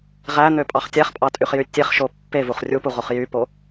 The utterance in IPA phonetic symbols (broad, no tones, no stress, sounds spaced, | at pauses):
ʁ æ n̪ ø pʼ ɑ χ tʲ æ χ pʼ ɑ tʼ y χ j y tʲ e χ ʃ o pː e v u χ rʲ u p u ʁ o χ j y p o